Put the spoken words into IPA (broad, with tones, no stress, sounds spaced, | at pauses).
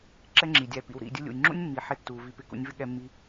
ǁ ɛ˦ ŋ͡ǁ i˨ dʲ æ˧ p ḭ˨ w ɾ ḭ˦˨ dʲ ʊ˦ lʲ ṵ˨ j ŋ͡ǁ ṵ˦ nʲ mː i˨ ħ ɪ˦ tː u˨ v i˧ p ɪ˧ k ṵ˧ nʲ v ɪ˦ ɠ ɛ˧ mː i˧